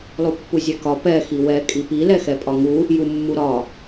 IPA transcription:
lˠ u pː u zʲ ɛ k ɒ p ɛ x i w ɛ kʼ i p i l ɛ x ɛ pʼ ɒ ŋ u | j u mː u ɾ ɒ

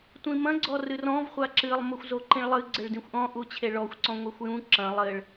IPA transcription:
tʷ ĩ m ɐ̃ ɡ͡ǀ ɔ r ɨ r ɔ̃ v χʷ a ǁ ɨ lˠ m o xʷ z o ǃ ĩ ɭ lˠ ɨ ɡ͡ǀ ɘ ɭ d ĩ xʷ ʔ ɔ̃ ʔ u t͡ɕʰ e ɭ ɔ xʷ ǀ ɔ̃ ŋʷ ɛ xʷ j ũ ǁ ɐ̃ lˠ ɘ ɭ

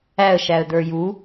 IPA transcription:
æ ə̯ ʃ æ ə̯ d̪ ə˞ j u

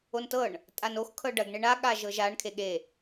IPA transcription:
o n t ɤ ɳ | tʼ a n o x kʰ ɤ ɖ ɐ ɡ ɳ e ɳ a ɠ a ʒ ɤ ʒ a ɳ kʰ e ɠ e

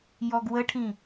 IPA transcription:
j ɔ ɡ w ə ʈʰ ĩ

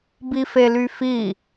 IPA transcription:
b i f e l y f i

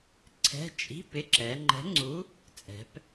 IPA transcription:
ǀʰ ɛ̤˧˥˧ t͡ʃʼ i̤˧˥˧ p ɪ˧˥˧ ǁ ɛ˩˧ ŋ͡ǃ ɛ̤˨˥ ŋ͡ǀ u˨˥ | t͡sʼ ɛ̤˩˧ p

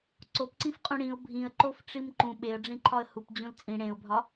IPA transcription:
ǀ o p ǀ ĩ f qʼ ũ ɽ ĩ ʊ̯ bʱ ĩ ə̯ ǃ o f ʈ͡ʂ i m ǃ ũ ɓ e ə̯ ɖ͡ʐ ĩ ǃʰ ɒ ə̯ h u p d͡ʑ ũ l t͡sʼ ĩ ɽ ẽ ʊ̯ bʱ ɒ

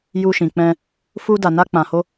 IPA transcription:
j u˧ ʃ ĩ˨ k͡p ɛ̃˧ | f u˧ d a˨ n a˧ k͡p ã˨ h o˧

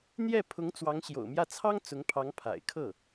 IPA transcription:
n̪ j ɛ˥˩ pʰ ʊ˧˥ ŋ t͡s w ɑ˧˥ ŋ ɕ j o̰˨˩ ʊ̯ m j ä˥˩ t͡sʰ ɑ˥ ŋ t͡s ʊ˧˥ ŋ pʰ ɑ˧˥ ŋ pʰ a̰˨˩ ɪ̯ kʰ ɤ˥˩

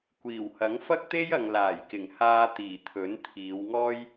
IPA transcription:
kʷ iː˨˩ w h ɐ˨˥ ŋ f ɐ˥ k̚ t̪ e˥ j ɐ˨ ŋ l aː˨˩ j k ɪ˨˩ ŋ h aː˧ t̪ iː˨˩ t̪ʰ ɵ˨˥ n t̪ʰ iː˨˧ w ŋ ɔː˥ j

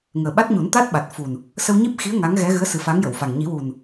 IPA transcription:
ŋ əː˨˩ ɓ a˦˥ t̚ ɲ u˨˩˦ n t̪ a˦˥ t̚ ɓ a˨˩ t̚ f u˨˩ n | s ə˧ w ɲ i˦˥ p̚ x i˧˥ ə̯ ŋ a˧˥ ŋ ɣ ɛ˧˥ ɣ ɨ˧˥ ə̯ s ɨ˨˩˦ f a˧˥ ŋ j ə˨˩˨ w f a˨˩ ŋ ɲ i˨˩˦ w u˨˩ n

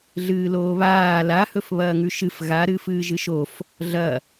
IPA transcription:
ɮ ɨː l oː β aː l a h ɵ f β ɐː ŋ ʉ ʃ ɨ f ɣ a ɾ ɨː f ɨː ʒ ɨ ʃ o f | ɮ ɐ

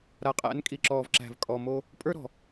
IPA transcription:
ɾ a˨ qʼ æ̰˨˦ n kʼ i˨ ǁ ɔː˨ v ǁ æ̤˨ v kʼ ɔ˨ m o˦ | pʼ ə˞˦ ɾ ɔ̤˨

